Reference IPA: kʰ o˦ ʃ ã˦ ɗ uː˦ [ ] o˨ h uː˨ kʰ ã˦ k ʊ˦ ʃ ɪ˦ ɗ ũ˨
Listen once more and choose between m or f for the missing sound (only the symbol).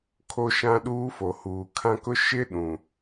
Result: f